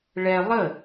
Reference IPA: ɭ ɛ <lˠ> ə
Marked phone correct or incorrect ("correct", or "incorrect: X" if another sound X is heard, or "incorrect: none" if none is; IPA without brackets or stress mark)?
correct